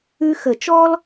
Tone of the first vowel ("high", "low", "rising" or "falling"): high